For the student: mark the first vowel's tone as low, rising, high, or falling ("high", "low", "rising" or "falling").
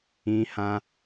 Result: high